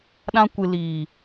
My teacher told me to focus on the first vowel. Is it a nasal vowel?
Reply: yes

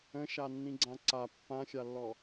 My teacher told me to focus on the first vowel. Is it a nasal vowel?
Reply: yes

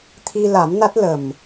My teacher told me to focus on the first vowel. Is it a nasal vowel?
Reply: no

